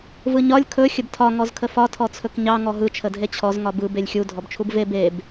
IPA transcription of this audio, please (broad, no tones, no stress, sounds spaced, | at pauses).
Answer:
v ɯ ɲ ɒ lʲ kʰ ɵ xʲ ə b tʰ ɒ ŋ ɔ z kʰ ə f ɒ tʰ ɔ t͡sʰ ɵ k ɲ ɑ ŋ ɔ ɦ ɯ t͡ʃʰ ə dʱ e t͡ɕʰ ɔ z ŋ ɒ b ɯ b e lʲ xʲ u dʱ ɔ b t͡ʃʰ u b v e b e b